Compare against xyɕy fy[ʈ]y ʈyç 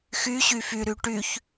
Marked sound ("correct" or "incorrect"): incorrect